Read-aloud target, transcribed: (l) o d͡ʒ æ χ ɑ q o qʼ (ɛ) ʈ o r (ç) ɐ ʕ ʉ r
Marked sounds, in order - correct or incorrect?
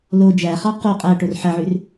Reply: correct, incorrect: æ, incorrect: ħ

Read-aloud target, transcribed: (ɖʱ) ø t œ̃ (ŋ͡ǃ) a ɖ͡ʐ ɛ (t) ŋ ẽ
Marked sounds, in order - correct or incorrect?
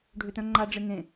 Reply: correct, correct, incorrect: none

